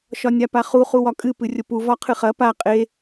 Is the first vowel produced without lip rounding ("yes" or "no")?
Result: no